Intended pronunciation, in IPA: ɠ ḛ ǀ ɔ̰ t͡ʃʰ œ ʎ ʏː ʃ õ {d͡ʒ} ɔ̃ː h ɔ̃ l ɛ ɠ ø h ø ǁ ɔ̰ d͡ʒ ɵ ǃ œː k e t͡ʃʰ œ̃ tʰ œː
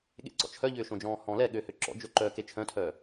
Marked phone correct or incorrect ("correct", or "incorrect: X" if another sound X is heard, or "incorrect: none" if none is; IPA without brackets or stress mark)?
correct